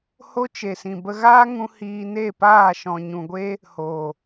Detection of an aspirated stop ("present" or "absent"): absent